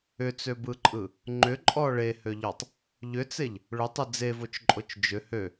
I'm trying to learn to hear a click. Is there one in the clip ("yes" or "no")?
yes